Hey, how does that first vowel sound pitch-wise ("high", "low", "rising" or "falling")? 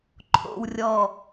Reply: low